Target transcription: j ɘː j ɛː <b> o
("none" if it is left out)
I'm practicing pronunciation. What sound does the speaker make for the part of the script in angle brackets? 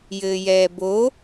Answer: b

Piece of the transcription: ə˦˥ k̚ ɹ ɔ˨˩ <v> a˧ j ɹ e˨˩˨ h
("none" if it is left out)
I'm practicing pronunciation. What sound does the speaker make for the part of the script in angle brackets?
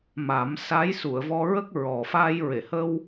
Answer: f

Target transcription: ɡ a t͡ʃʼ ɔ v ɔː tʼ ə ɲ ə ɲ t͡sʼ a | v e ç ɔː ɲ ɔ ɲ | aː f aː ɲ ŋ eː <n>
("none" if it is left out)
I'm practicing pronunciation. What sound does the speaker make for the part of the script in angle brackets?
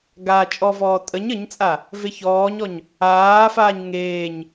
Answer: ɲ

